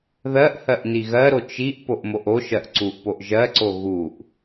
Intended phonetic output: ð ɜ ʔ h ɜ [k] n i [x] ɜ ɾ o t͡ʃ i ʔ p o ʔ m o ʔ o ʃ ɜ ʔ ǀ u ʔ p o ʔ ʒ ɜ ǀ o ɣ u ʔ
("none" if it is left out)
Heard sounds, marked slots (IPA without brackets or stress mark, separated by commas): ʔ, ɣ